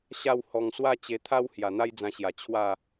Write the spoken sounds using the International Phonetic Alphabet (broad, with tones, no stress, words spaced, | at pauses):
ɕa˥˧w hɔ˨˩ŋswa˥˧t͡ɕe˧t̪ʰa˦w hja˨˩n̪a˦jd͡zã˧ɕja˨˩ t͡ɕʰwa˥˧